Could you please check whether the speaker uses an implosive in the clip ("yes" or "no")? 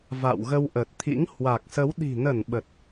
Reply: yes